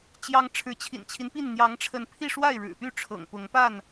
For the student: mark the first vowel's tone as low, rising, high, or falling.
high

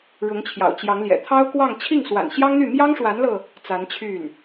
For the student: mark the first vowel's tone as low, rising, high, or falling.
rising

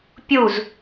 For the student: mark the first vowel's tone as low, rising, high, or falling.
falling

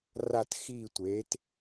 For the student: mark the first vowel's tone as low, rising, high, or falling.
falling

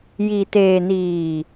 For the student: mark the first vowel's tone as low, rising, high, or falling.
low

